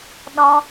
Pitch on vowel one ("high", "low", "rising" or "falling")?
high